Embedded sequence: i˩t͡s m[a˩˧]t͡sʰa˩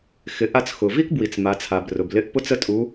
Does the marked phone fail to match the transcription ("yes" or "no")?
no